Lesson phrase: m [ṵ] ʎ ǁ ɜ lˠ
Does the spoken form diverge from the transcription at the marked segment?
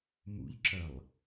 no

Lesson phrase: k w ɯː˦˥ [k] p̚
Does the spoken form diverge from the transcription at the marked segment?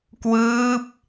yes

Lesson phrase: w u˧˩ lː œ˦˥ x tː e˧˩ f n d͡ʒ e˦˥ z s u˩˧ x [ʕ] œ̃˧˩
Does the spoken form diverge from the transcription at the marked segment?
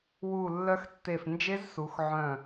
no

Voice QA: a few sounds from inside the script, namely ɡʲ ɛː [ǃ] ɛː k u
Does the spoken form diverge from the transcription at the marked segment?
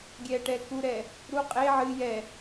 yes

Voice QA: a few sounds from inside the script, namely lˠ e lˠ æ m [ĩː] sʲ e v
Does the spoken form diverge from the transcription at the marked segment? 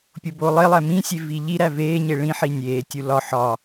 yes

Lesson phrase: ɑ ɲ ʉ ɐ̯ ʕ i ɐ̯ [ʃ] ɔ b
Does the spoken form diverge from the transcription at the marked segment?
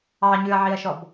no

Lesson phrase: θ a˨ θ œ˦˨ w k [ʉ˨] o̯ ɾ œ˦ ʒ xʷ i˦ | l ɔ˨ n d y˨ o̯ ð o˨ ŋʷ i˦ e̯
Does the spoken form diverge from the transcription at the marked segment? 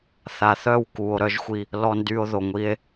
yes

